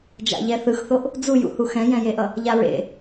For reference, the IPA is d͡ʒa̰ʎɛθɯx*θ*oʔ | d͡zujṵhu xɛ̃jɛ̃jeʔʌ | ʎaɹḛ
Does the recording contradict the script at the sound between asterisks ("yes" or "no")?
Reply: no